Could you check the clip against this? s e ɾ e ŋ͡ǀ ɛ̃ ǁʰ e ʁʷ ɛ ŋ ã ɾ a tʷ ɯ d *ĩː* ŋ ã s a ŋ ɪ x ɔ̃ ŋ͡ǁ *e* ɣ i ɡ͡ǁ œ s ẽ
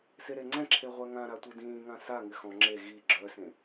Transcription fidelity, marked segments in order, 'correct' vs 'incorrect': correct, correct

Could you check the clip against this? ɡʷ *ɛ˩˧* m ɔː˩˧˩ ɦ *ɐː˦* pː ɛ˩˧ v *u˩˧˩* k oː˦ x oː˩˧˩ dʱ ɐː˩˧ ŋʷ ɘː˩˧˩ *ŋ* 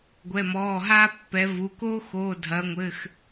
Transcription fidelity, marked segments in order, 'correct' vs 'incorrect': incorrect: ɛ˩˧˩, incorrect: aː˦, correct, incorrect: x

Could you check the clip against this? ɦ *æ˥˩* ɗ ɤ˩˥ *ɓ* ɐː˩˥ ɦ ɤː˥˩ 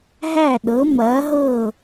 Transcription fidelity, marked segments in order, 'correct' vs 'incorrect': correct, incorrect: m

